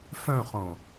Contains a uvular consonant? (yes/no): yes